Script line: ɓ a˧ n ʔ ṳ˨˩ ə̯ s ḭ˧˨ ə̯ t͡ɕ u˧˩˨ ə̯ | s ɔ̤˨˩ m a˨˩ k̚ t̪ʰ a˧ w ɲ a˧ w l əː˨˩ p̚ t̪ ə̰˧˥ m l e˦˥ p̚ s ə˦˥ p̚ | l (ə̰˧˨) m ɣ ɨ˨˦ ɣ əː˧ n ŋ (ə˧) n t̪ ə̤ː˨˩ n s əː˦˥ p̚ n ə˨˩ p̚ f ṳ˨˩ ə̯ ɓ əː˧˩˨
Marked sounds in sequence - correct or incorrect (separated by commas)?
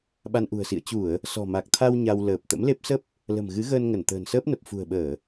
incorrect, incorrect